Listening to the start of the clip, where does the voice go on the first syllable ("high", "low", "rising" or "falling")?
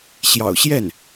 low